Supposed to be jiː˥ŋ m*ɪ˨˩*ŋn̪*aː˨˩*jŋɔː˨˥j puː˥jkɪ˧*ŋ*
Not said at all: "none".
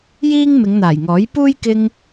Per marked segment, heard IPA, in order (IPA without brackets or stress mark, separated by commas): ɪ˨˧, aː˨˩, ŋ